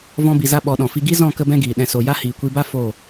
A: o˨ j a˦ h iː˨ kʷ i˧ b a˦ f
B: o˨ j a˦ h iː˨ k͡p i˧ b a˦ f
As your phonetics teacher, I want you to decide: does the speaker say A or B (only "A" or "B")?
A